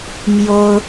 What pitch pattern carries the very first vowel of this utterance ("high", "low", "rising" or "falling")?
high